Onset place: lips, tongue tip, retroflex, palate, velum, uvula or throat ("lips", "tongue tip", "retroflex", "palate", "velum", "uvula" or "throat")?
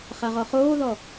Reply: uvula